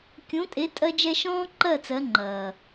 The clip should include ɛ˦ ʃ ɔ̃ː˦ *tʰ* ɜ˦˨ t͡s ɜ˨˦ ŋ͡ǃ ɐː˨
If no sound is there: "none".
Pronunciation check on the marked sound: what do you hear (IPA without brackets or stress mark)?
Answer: ǃ